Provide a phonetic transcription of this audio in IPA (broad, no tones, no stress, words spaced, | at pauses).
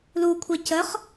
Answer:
lukʷʰe cəχ